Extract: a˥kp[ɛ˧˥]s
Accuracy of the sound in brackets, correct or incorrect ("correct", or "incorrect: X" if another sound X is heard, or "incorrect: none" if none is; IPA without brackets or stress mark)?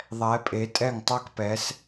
correct